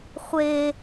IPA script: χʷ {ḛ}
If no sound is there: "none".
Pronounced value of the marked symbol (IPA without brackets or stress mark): e